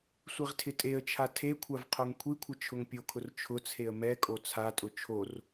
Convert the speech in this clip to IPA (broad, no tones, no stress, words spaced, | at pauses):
sʷiʁtʰɪtʼeə̯t͡ʃʰa tʰekʷʰav qʰoŋkʷʰikʷʰɪ t͡ʃʰʊŋpʲokʰʊr t͡ʃʰʊt͡sʰeə̯ mɛkʼo t͡sʰatʼʊ t͡ʃʰor